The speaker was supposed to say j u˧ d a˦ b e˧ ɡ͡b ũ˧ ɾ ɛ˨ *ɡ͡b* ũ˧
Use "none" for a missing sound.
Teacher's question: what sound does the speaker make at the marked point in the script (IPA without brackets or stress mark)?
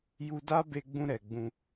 ɡ͡b